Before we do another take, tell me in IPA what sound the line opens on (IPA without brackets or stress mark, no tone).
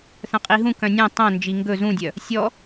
θ